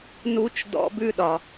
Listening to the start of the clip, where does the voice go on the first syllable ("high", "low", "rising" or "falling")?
high